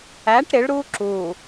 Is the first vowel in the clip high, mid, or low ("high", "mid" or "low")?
low